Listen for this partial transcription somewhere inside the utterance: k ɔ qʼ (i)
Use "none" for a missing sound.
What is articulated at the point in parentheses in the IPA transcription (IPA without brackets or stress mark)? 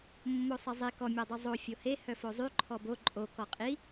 i